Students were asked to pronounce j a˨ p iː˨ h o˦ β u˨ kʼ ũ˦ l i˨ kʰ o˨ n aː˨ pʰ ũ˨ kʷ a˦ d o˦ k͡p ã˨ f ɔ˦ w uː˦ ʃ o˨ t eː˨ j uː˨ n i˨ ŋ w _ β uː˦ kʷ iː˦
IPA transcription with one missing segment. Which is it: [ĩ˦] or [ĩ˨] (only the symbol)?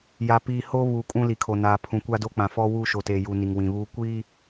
ĩ˨